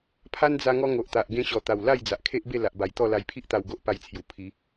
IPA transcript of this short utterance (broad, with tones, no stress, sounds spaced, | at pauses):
pʰ a˦ n d͡z a˧ ŋ ɔ˦ ŋ o˨ ʔ t̪ a˨ ʔ ɡ ẽ˦ ɕ ɔ˨˩ t̪ a˨˩ w l a˥˧ j d͡z a˨ ʔ kʰ e˦ ʔ b e˥˧ l a˨ ʔ b a˨˩ j t̪ ɔ˥˧ l a˧ j pʰ i˦ ʔ t̪ a˧ w ɡ o˦ ʔ p a˧ j t͡sʰ j u˨˩ pʰ i˨˦